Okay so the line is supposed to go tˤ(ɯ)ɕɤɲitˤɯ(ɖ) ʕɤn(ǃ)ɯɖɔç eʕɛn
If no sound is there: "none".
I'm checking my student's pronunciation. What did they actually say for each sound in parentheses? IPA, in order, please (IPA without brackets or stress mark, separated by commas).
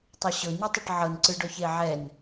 ɤ, ʈ, ǀ